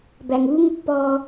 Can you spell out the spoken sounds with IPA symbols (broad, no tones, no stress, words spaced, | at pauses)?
bæŋuŋ pːɔ